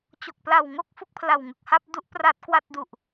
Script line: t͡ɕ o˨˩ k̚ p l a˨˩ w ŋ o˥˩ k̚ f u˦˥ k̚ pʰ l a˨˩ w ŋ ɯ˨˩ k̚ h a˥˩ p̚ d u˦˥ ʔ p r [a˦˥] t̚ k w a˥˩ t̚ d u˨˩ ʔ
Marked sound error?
no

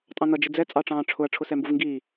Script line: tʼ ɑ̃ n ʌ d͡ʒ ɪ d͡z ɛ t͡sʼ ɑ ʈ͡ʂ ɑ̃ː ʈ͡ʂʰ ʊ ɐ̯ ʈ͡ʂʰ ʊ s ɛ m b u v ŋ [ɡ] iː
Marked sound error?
no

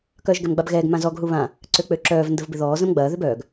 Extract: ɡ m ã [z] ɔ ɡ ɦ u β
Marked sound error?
no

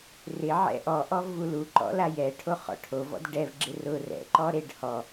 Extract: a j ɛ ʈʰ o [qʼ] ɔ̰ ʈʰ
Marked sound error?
yes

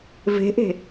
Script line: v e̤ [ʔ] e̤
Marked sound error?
no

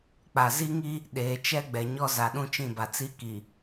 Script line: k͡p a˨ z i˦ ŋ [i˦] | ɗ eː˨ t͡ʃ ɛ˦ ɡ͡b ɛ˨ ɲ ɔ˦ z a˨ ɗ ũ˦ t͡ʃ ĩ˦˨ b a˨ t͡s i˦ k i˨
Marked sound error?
no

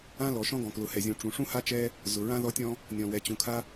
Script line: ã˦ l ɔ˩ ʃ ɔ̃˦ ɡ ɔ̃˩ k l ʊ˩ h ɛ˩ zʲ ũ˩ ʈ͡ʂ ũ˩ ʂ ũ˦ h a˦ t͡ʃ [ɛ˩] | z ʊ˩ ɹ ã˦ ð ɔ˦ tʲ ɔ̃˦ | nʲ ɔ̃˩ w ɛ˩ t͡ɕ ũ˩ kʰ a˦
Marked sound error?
yes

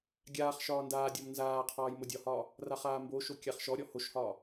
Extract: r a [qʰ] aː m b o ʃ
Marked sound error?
yes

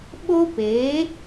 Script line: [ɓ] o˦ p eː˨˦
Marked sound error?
no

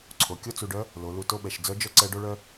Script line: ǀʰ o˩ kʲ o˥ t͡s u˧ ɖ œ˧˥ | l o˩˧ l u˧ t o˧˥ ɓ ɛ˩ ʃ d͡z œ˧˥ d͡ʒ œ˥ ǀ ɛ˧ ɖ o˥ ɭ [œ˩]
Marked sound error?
yes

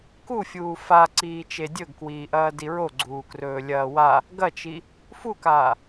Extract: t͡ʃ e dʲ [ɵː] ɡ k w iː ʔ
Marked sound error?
yes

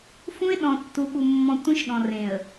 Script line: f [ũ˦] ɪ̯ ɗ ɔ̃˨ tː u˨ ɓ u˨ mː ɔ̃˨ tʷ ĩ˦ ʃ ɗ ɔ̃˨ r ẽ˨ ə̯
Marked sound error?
no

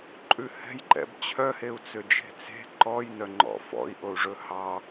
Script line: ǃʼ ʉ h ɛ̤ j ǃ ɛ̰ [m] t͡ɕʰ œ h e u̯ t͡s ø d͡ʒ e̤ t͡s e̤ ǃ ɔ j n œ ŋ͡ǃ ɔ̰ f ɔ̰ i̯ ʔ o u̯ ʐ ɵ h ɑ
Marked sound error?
yes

